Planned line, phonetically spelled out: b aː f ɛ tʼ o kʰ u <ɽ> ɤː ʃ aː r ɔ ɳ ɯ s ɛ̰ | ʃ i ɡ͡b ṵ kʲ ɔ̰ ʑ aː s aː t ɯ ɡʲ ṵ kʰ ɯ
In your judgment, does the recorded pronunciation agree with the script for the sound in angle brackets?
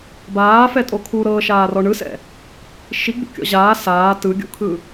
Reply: no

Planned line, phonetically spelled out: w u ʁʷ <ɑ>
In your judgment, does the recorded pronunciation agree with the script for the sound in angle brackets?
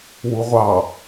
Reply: yes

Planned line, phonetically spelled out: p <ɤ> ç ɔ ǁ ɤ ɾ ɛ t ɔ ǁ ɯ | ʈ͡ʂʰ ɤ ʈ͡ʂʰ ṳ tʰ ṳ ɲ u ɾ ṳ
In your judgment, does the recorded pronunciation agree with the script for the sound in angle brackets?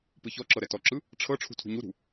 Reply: no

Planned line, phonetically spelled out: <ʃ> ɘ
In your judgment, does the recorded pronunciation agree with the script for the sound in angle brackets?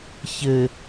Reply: no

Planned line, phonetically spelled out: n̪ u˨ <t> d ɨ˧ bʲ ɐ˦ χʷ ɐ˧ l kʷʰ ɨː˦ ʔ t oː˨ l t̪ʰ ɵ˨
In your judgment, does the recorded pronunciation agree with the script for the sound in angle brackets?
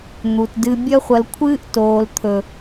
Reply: yes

